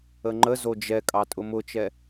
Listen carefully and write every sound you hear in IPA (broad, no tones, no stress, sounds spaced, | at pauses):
ə ŋ͡ǃ ə z o d͡ʒ ɛ kʼ ɑ tʼ ʊ m ʊ t͡ʃ ɛ